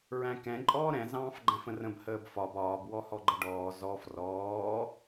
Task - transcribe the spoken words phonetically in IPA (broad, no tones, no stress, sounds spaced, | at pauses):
ɹ æ̃ k ɛ̃ ǃʼ ɔː ɾ ɛ̃ z ɑ̃ː f ɡ͡ǃ æ̃ f ə̃ r ə̃ b h əː b f ɒ b ɒː b w ɔ h ɔ ɡ͡ǃ ə ɖ ɔː z ɔ f r ɔː